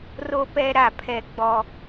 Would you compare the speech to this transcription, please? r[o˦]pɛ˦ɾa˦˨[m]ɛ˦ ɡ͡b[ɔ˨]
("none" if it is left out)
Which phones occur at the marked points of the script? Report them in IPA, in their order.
o˦, pʰ, ɔ˦

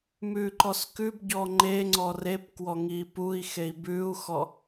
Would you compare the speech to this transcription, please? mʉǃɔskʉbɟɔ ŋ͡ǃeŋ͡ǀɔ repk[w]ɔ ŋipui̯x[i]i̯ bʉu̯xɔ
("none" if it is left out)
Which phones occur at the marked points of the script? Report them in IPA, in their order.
w, e

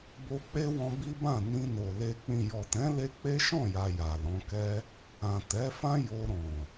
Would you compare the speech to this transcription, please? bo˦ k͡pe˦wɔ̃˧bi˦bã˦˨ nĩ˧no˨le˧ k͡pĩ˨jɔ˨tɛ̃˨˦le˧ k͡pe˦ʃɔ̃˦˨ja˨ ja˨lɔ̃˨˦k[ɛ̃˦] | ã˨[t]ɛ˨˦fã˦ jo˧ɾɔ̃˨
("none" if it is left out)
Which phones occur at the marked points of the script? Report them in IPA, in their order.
ɛ˦, t

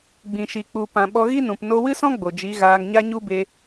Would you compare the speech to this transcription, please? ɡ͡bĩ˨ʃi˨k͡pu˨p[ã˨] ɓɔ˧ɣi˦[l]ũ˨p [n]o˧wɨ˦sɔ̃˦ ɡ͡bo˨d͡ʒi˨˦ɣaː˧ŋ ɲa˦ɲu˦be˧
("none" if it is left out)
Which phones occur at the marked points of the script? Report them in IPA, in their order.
ã˨, n, n

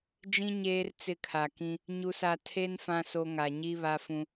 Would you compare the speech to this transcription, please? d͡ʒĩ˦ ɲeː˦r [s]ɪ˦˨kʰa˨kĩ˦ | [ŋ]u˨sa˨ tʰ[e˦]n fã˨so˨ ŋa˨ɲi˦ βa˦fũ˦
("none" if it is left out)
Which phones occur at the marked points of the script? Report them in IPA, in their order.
t͡s, ɲ, e˦

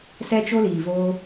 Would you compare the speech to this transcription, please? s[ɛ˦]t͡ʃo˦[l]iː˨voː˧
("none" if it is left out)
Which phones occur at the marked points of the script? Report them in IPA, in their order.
ɛ˦, l

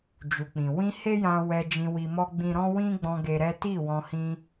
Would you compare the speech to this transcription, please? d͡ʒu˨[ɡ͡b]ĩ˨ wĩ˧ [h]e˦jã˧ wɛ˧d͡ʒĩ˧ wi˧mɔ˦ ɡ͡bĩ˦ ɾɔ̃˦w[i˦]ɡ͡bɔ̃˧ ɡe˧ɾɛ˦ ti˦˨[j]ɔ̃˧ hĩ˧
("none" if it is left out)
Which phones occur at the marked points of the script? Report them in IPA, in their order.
k͡p, h, ĩ˦, w

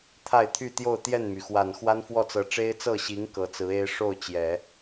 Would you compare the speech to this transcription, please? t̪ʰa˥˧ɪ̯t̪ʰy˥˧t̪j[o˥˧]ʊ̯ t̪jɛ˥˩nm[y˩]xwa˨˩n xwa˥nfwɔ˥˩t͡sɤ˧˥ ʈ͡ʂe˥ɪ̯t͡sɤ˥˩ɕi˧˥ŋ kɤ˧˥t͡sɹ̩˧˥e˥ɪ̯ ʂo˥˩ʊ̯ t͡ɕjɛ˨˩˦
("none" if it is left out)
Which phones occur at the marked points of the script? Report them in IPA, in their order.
o˥˧, y˩

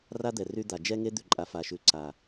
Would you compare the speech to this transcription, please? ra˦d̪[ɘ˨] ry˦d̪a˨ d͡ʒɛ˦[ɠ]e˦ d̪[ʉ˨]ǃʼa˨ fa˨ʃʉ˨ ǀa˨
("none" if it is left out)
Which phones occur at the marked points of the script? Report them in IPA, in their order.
ɛ˨, ŋ, ʉ˨

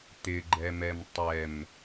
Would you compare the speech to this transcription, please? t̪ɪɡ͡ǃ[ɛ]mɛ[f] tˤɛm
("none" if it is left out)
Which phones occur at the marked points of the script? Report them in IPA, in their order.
ɛ, m

